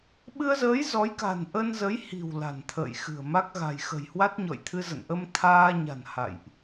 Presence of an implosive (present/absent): present